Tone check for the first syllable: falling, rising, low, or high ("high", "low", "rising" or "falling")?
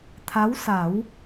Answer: rising